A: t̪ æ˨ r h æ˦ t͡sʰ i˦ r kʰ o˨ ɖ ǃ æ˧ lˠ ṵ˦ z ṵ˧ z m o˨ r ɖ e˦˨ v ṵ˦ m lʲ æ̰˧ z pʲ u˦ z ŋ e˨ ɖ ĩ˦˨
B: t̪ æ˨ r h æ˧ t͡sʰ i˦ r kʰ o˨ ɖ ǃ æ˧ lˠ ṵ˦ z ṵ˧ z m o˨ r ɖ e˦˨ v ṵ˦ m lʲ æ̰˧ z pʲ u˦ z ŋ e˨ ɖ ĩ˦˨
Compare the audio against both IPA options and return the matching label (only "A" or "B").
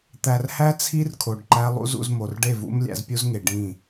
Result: A